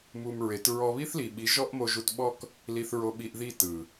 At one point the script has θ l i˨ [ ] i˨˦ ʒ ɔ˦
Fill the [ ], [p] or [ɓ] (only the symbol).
ɓ